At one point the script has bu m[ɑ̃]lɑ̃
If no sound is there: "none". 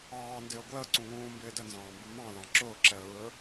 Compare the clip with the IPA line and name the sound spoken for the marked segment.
ɑ̃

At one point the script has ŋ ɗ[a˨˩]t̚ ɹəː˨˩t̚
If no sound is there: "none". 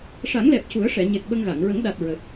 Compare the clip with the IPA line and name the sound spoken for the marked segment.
a˨˩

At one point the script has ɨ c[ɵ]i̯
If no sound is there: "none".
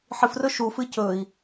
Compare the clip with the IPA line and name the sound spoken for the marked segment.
ɵ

